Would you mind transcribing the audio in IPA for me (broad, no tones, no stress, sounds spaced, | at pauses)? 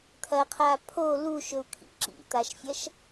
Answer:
t̪ʰ ɐ qʰ a pʰ o l u ʃ ɵ u̯ kʰ ḭ ǁ ḭ t̪ a ʃ fʲ ɐ ʃ